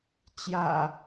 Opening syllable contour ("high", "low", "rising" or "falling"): low